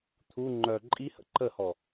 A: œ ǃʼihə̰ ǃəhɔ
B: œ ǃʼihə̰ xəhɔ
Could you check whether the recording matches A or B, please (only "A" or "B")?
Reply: A